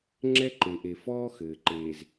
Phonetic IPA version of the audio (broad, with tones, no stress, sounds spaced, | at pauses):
ŋ͡ǁ ɛ˦ ǃ e˨ ʔ e˨ f ɔː˦ x ɘː˨ ǃ eː˨ z